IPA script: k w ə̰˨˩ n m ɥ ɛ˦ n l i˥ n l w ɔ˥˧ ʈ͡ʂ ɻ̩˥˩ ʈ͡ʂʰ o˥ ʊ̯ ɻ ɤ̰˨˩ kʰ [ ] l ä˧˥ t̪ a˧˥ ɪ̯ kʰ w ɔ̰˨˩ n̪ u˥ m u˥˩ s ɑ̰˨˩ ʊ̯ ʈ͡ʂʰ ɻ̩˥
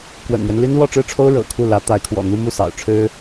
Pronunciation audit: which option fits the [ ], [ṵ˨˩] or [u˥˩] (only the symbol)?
u˥˩